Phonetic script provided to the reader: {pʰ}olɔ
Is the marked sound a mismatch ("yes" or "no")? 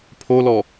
no